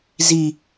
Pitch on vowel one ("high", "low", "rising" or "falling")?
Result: low